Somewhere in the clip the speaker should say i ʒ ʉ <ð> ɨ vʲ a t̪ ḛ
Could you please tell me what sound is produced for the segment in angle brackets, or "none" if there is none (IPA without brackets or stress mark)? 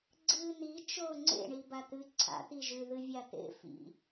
ð